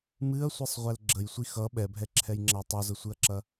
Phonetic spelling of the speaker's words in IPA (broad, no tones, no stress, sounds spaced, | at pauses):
m ɨ ɐ̯ sʷ ɨ sˤ ʁʷ ɛ l ɡ͡ǁ ə j sʷ i x ʌ ɓ ɛ bʱ ɛ ǁʰ ɛ j ŋ͡ǁ ɐ j tˤ u z ə sʷ ɨ ɐ̯ ǁ ɐ